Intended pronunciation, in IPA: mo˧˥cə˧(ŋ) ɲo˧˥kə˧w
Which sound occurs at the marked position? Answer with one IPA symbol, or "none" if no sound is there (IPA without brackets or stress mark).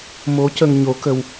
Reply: ŋ